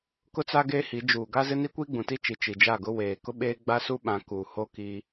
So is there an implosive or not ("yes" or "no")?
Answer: yes